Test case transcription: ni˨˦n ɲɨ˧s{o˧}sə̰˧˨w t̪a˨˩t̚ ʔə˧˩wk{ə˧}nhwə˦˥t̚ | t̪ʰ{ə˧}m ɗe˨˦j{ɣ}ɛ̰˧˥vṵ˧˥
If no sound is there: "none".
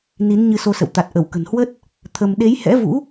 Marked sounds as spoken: o˧, ə̤˨˩, ə˧, h

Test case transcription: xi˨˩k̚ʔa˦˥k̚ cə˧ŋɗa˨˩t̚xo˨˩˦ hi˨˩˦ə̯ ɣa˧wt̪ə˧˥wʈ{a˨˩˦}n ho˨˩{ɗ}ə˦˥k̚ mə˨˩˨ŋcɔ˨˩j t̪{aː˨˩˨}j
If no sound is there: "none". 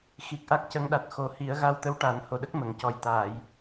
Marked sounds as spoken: a˨˩˦, ɗ, aː˨˩˨

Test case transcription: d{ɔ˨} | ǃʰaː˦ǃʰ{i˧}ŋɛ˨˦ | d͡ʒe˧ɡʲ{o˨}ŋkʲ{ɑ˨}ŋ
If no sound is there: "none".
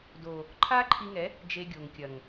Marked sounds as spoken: o˨, i˧, o˨, ɐ˨

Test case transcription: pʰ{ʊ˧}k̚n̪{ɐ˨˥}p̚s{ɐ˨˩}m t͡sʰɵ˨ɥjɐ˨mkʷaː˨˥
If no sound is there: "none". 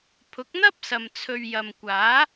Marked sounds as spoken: ʊ˨˥, ɐ˥, ɐ˨

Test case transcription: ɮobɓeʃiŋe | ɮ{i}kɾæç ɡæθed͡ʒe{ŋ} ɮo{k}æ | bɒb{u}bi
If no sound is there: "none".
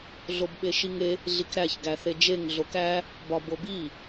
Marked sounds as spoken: i, ŋ, k, o

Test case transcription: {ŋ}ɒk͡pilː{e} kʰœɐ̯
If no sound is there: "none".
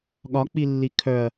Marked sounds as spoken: ɠ, i

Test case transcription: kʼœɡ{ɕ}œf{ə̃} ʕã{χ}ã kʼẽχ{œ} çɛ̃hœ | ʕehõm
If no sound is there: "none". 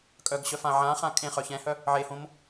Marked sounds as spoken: ɕ, ã, χ, œ

